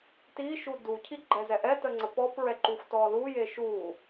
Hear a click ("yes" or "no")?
yes